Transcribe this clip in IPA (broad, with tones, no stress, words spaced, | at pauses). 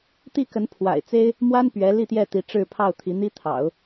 t̪i˥˩kə˧˥n pʰwa̰˨˩ɪ̯t͡se˥ɪ̯ | mwa˥n pɥɛ˧˥ li˥˧t̪jɛ˥˩t̪i˧˥ ʈ͡ʂɻ̩˥˧pʰɑ˥˩ʊ̯ t̪ʰi˧˥n̪i˥t̪ʰɑ̰˨˩˦ʊ̯